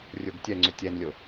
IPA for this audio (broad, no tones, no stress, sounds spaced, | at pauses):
rʲ o ɡ tʲ ɛ ŋ͡ǀ ɵ tʲ ɛ n lʲ o